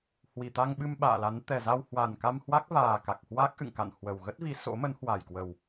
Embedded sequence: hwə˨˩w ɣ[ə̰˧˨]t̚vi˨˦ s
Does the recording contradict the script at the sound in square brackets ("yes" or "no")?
yes